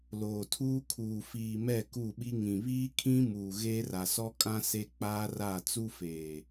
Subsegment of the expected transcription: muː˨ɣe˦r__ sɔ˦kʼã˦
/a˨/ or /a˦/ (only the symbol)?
a˨